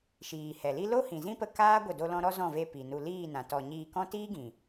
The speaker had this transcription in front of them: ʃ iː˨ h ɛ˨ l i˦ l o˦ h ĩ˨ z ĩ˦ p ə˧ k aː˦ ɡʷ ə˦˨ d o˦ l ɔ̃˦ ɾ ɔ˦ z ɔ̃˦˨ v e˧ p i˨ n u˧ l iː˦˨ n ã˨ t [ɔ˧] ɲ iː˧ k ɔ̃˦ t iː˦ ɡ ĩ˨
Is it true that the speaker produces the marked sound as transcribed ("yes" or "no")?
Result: yes